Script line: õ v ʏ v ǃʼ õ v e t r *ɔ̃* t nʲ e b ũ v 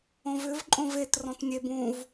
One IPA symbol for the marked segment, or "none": ɔ̃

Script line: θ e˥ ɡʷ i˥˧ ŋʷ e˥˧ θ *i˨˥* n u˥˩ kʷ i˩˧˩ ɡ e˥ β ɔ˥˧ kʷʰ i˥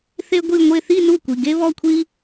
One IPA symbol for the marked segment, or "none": i˥˧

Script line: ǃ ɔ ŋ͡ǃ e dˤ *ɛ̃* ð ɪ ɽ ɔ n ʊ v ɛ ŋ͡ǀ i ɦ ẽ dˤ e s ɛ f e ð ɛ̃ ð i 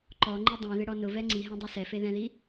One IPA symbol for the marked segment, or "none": ɛ̃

